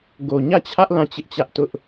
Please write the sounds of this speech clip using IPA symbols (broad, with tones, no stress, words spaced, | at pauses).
ɡo˨ɲä˦˨t͡ɕʰä˦ʔ lã˦˨t͡ɕɪ˦ʔt͡ɕä˦ʔ tʊ˦ʔ